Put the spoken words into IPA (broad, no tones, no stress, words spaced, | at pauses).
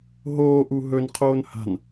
ɦoː ʔuɦɵn qʰoːnha̤n